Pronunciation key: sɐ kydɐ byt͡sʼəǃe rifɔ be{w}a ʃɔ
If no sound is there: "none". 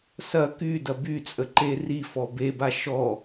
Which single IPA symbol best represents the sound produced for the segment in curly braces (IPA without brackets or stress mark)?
b